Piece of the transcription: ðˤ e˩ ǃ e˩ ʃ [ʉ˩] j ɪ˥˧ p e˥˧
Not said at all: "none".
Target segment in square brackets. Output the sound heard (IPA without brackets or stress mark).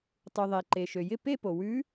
ø˩